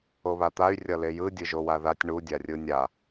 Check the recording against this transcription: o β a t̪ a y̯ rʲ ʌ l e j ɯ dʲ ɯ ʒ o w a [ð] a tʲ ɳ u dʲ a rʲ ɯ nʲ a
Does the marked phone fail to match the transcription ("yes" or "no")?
no